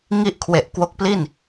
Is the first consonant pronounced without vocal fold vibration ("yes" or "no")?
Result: no